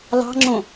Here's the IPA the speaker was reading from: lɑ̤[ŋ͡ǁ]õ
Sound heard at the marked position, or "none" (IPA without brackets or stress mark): ŋ͡ǁ